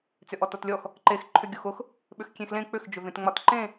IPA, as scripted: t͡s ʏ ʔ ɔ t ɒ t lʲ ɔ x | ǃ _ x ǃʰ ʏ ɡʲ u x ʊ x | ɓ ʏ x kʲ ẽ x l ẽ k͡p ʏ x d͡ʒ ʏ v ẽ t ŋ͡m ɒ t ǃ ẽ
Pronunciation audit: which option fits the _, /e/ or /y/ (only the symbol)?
e